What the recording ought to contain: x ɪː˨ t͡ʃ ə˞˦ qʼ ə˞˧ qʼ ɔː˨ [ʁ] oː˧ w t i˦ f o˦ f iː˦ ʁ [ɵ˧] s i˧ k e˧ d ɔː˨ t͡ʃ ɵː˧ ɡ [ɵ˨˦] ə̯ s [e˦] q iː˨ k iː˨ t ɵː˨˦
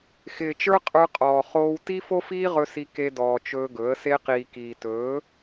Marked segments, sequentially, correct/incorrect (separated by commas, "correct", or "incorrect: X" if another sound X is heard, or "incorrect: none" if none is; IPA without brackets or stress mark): incorrect: χ, correct, correct, incorrect: e˧